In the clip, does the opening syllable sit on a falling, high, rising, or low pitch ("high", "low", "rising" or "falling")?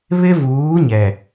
high